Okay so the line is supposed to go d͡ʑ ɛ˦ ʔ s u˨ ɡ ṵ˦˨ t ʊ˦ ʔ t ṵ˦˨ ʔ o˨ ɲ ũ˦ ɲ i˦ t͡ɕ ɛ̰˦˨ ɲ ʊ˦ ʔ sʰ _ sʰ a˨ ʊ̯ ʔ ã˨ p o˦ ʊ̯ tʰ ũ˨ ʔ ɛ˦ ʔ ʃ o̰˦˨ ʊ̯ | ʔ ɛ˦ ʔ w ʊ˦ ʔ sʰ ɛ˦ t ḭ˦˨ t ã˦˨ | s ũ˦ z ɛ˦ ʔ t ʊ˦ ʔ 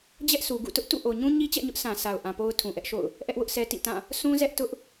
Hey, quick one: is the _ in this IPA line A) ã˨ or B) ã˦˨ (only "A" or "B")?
A